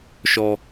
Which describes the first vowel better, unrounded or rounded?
rounded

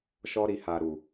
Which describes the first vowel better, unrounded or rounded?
rounded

